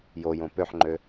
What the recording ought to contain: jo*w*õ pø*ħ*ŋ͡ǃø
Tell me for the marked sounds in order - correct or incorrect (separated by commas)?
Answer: incorrect, correct